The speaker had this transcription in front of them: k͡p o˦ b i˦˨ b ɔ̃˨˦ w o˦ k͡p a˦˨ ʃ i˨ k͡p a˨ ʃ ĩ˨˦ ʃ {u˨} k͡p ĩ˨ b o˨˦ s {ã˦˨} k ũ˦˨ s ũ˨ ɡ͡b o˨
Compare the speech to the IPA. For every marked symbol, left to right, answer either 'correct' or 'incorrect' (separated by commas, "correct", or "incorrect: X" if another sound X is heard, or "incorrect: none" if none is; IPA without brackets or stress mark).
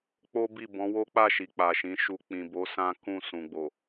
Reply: incorrect: u˧, incorrect: ã˦